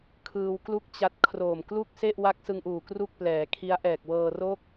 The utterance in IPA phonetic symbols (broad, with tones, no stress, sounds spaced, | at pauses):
kʰ ɯː˧ w k l u˥˩ k̚ t͡ɕ a˦˥ t̚ kʰ r oː˨˩ m k l u˥˩ k̚ s e˥˩ ʔ w a˦˥ k̚ s ɯ˧ ŋ ʔ uː˨˩ k r u˥˩ k̚ p l ɛː˩˦ kʰ i˦˥ a̯ ʔ ɛː˨˩ k̚ w ɤː˧ r o˥˩ k̚